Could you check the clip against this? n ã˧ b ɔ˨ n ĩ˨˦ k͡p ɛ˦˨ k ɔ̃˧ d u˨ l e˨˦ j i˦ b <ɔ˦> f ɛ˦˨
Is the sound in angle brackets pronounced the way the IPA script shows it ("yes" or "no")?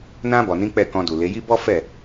yes